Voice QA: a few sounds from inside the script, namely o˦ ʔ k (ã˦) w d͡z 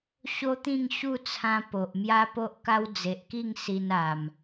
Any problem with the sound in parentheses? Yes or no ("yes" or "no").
yes